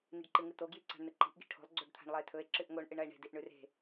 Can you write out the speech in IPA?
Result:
niɖǃɨŋɨt̪o ɡjiǀa̤ɳn̪ɨǃi̤ʔ ɡi̤ʈʰo̤lˠ ɡ͡ǀoɖt̪ʰa̤ɳlˠɐe̯t̪ʰɵe̯ ǁɨʔŋoɳ ʔɨɳɐe̯ɳe̤ diʔɳʉre̤

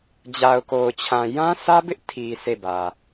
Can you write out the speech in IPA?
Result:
d͡ʑa˨ʊ̯ko˨ʊ̯t͡ɕʰã˨ jã˦sʰä˦bɪ˦ʔ tʰi˨ sʰe˦˨bä˨

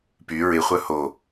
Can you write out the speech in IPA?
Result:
py ɹɪ χʷœho

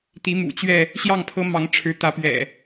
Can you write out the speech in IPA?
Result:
t̪i˨˦mṵ˨˩t͡ɕɥɛ˥˨ | ɕjɑ˥˨ŋpʰɤ˦mɑ˨˦ŋʈ͡ʂʰɻ̩˨˦ t̪ä˨˦pɥɛ̰˨˩

